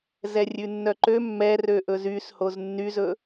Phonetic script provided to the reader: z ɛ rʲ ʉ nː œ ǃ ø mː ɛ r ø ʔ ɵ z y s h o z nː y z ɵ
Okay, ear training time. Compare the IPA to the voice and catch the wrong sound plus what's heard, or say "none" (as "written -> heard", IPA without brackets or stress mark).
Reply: none